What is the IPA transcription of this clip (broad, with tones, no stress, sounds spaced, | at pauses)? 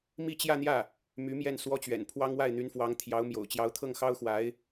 m i˥˧ t͡ɕ j ä˥˧ n̪ j ä˥˩ | m y˧˥ m j ɛ˥˩ n s w ɔ˥ t͡ɕ ɥ ɛ̰˨˩ n pʰ w ɑ˥ ŋ w a˥˩ ɪ̯ n̪ y˧˥ n f w ɑ˧˥ ŋ t̪ʰ j ɑ˧˥ ʊ̯ m j o̰˨˩ ʊ̯ t͡ɕ j ɑ˧˥ ʊ̯ t̪ʰ ɤ˥˩ ŋ x ɑ˥ ʊ̯ x w a˧˥ ɪ̯